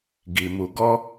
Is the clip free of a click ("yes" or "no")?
yes